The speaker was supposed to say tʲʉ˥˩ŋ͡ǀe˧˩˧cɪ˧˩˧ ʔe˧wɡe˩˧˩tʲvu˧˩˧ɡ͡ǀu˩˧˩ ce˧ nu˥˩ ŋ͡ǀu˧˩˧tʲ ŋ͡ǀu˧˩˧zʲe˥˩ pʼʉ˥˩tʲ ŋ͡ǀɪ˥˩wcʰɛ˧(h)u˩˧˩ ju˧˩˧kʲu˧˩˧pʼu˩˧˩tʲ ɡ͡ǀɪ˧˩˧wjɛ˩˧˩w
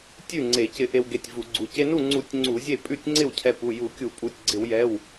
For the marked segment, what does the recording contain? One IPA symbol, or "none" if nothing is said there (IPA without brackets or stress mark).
p